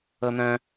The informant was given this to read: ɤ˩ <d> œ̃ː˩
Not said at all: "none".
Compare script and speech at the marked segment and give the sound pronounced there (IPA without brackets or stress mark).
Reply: n̪